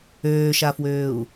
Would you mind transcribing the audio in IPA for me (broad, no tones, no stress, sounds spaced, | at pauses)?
øː ʃ a f w øː u̯